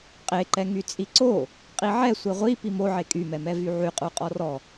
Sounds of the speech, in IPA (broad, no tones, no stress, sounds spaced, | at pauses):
qʼ e ǃ ɛ ŋ y t͡sʼ i ǀ o | qʼ i ʕ ɛ sʷ e ʁʷ i p i m o ʕ e kʼ y m ɛ m ɛ v y ʕ y qʼ u qʼ ɔ r ɔ